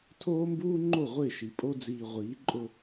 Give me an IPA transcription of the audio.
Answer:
tʰ oː˦ m b uː˦ ŋ͡ǃ o˦˨ ʁʷ ɪː˦˨ ʃ i˨ pʼ o˦ d͡z iː˨ ʁʷ iː˨˦ ǃʼ ʊ˦

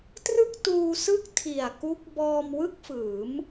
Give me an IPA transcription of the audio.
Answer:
t r ɯ˥˩ k̚ t uː˧ s ɯ˥˩ k̚ tʰ i˨˩ a̯ k u˦˥ k̚ b ɔː˧ m w ɯ˥˩ k̚ f ɯː˩˦ m

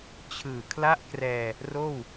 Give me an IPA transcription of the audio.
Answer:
t͡ɕʰ ɯː˨˩ kʰ l a˥˩ ʔ k r ɛː˧ | r oː˥˩ w

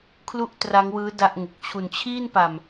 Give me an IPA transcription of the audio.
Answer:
kʰ l u˥˩ ʔ t r a˦˥ ŋ w ɯː˦˥ d a˥˩ ʔ ŋ u˨˩ k̚ t͡ɕʰ u˨˩ n t͡ɕʰ iː˥˩ n p a˨˩ m

